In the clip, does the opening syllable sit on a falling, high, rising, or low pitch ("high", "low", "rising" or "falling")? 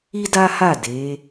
high